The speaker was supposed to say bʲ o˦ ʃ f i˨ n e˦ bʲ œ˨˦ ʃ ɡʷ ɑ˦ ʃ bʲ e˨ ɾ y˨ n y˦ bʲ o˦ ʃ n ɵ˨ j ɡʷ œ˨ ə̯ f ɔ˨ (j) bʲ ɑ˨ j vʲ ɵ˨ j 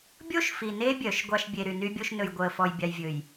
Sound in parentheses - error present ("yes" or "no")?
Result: no